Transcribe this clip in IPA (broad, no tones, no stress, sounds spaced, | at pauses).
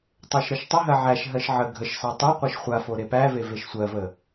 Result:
tˤ e ʃ ɾ ɜ ʃ tˤ ə ɦ ɜ ʕ æ ʃ ɦ ɜ ʃ ʕ ə ɡʱ ə ʃ s ɑ tˤ o qʷ ɜ ʃ χʷ a f o ɾ e p æ v e v e ʃ sʷ ɜ v ə